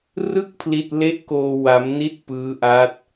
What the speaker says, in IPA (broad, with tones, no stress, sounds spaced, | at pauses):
r ɯ˥˩ k̚ pʰ l i˥˩ t̚ l e˦˥ ʔ k oː˧ w a˦˥ m n i˥˩ t̚ p ɯː˦˥ ʔ a˦˥ t̚